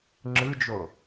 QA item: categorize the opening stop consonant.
click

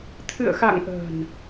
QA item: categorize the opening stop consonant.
aspirated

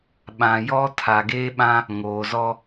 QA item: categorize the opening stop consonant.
implosive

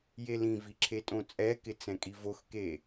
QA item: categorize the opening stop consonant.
click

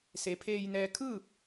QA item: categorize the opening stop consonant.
aspirated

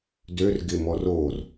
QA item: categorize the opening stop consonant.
plain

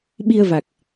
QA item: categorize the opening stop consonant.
implosive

